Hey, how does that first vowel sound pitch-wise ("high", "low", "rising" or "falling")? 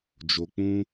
low